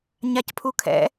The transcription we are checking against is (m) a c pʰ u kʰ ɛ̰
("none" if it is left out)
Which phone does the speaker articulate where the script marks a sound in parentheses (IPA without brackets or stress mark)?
ɲ